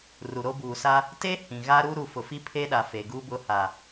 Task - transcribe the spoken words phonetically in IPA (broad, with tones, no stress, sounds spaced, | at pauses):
r u˨ ɾ o˦ b uː˨ s a˦ | t eː˦ h ĩ˨ ɣ a˦ ɾ u˦ ɾ u˨ f ʊ˨ f i˦ pʰ eː˦ ɗ a˨ f e˨ ɡ uː˦ b ʊ˦˨ h a˨